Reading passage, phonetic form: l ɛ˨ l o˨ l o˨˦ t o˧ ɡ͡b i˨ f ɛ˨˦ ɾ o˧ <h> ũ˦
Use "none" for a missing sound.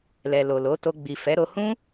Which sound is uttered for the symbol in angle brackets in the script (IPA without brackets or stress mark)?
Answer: h